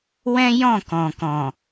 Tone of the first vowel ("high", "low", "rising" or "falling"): high